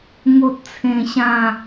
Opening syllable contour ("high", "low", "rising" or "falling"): high